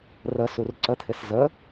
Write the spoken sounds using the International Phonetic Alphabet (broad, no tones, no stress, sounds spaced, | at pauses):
r ə s u r ǀ ə t̪ʰ ɪ s z ə